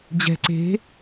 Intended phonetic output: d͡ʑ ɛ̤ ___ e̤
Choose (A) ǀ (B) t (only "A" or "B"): A